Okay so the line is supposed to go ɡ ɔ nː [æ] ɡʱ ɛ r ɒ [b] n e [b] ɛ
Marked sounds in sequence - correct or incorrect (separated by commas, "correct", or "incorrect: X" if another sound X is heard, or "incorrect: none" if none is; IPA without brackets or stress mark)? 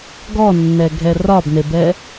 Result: incorrect: ɛ, correct, correct